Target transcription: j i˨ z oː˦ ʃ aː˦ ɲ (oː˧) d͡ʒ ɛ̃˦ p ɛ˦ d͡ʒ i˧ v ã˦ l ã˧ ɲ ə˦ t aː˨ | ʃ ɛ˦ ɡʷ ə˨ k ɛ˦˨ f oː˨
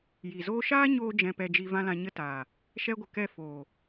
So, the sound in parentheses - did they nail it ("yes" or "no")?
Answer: yes